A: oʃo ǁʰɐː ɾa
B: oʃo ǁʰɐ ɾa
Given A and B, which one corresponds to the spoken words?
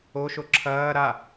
A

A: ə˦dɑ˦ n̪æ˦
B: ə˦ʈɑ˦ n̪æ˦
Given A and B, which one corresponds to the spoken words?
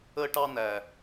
B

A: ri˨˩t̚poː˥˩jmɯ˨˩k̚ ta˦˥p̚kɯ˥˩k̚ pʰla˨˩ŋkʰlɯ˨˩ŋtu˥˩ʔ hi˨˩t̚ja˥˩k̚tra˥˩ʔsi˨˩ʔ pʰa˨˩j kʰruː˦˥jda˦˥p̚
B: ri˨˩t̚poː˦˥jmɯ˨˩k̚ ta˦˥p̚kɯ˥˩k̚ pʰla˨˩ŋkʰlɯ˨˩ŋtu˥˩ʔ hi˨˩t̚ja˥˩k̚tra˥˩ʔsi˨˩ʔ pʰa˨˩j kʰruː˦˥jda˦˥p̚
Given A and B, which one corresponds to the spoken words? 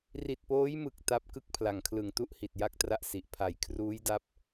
B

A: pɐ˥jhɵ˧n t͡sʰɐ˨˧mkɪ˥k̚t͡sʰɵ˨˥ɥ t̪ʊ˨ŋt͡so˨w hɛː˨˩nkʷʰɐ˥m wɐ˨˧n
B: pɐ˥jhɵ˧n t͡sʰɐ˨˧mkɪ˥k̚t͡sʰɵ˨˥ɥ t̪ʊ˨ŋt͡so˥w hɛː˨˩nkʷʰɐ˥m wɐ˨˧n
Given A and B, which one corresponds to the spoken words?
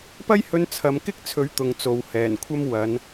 A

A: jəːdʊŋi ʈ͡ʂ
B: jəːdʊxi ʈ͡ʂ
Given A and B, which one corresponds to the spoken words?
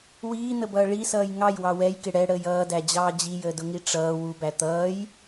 A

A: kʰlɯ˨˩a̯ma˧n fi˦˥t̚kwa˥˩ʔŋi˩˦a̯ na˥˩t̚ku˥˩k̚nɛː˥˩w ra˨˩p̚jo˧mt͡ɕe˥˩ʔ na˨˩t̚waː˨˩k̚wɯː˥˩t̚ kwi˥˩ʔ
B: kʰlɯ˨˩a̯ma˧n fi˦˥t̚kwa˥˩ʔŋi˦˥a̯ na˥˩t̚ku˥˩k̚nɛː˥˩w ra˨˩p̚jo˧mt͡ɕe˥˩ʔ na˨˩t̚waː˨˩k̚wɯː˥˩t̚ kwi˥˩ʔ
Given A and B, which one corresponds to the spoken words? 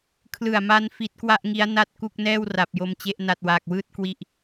B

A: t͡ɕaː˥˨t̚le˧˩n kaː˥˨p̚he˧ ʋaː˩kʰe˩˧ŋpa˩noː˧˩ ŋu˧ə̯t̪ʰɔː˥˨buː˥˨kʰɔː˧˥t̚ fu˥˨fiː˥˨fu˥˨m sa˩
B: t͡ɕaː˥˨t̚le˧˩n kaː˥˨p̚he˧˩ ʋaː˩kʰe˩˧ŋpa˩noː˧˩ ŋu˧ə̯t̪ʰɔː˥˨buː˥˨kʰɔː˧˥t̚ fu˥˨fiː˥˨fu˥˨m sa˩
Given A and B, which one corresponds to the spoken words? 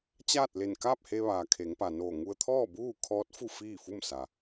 A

